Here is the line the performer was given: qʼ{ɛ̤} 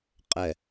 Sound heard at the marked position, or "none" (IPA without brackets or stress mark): ɛ